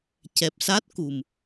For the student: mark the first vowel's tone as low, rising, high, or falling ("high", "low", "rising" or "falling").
low